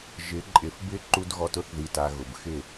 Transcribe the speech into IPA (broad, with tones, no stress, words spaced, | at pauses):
ʒɪ˨˦ǃʼɪ˨f bɪ˦ ǃu˦dɣɔ˦t ʊ˦θði˨ta˨ ɣʊ˨bxɪ˦˨